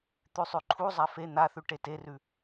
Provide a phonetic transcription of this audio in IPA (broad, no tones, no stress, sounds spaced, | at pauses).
t̪ ʉ sˤ ʉ ǃʰ u zˤ a f e n̪ a θ ʉ ʈ e t e r ʉ